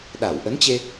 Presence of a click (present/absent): absent